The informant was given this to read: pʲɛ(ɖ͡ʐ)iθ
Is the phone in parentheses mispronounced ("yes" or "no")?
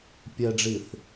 no